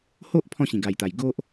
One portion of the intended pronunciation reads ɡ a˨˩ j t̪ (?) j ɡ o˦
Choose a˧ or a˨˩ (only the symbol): a˨˩